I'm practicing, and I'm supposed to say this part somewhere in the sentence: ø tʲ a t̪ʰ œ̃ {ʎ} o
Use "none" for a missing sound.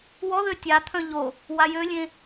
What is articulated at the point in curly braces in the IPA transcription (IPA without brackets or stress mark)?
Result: ʎ